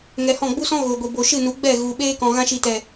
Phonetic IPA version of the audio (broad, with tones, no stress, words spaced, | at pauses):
ŋɛ˧hɔ̃˦˨ ɡ͡bu˦sɔ̃˦ ɣo˨ɡʷi˨ bo˨ʃɨ˦˨nu˨˦ ɡ͡bɛ˦˨ɣu˨ɓeː˦kɔ̃˨ ɣã˧ʃi˨tɛ˨